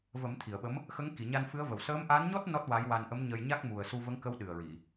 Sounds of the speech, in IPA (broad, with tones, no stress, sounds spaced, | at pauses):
v ə˨˩˦ m t̪ʰ i˨˩˨ ə̯ ɓ ə˧˥ m | x ə˧˥ ŋ k i˨˩˨ ɲ a˧ n f ɨ˧˥ ə̯ v ə˨˩ w s əː˧˥ m ʔ a˧˥ n ɲ ɔ˦˥ t̚ n ɔ˦˥ t̚ w a˧˥ j w a˧ n ʔ ə˧˥ m ɲ ə˧ j ɲ a˦˥ k̚ m u˨˩ ə̯ s u˧ v ə˧˥ ŋ k ə˧˥ w ɗ ɨ˨˩ ə̯ ɹ i˨˩˨